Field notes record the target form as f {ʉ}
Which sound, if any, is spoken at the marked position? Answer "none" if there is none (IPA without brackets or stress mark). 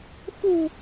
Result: u